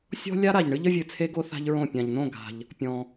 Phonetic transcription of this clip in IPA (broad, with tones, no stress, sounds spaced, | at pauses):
sʲ ɔ̤˦ lʲ a˦ ɾ a˨ ʎ ɳ ɨ˦ ʎ ə˦ vʲ ɨ˧ t͡sʰ e˦ ɡ o˦ θ a̤˦ ʎ ɹ õ˦˨ pʲ ã˨ ʎ n̪ õ˦˨ ɡ a̤˧ ʎ | pʲ ɔ̃˧